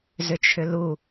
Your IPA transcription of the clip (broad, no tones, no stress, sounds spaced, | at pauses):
z ʏ t͡ʃʰ ʏ l u